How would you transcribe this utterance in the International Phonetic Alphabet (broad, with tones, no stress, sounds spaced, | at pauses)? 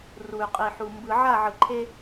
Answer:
r u˨ y̯ qʼ i˨ ħ u˨ m b ɯ˨ ʕ a˦˨ ʕ ɯ˨ ǃʰ e˦